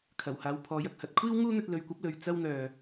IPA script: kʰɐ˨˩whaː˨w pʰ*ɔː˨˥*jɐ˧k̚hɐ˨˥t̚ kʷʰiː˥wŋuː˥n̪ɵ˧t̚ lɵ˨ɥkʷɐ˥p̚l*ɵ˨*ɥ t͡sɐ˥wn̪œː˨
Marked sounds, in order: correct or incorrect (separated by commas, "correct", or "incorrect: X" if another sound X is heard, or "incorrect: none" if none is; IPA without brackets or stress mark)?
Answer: correct, correct